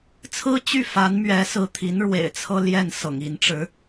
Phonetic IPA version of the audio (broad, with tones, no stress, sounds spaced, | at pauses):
t͡sʰ ɹ̩˥ t͡ɕ y˥˩ f a˧˥ n m ɥ ɛ˧˥ s ɹ̩˧˥ t̪ʰ i˧˥ n ɻ w ḛ˨˩ ɪ̯ t͡sʰ ɤ˥ l j ɛ˥˩ n s ɤ̰˨˩ ŋ i˧˥ n ʈ͡ʂ ɻ̩˧˥